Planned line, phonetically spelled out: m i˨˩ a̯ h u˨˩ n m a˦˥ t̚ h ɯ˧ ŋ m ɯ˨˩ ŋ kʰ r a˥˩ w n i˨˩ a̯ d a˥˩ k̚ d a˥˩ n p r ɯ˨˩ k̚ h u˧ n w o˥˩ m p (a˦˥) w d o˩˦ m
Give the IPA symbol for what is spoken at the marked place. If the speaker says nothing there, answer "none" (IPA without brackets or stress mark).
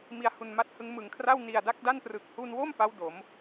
a˦˥